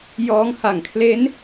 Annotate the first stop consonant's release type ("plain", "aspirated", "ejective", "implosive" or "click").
aspirated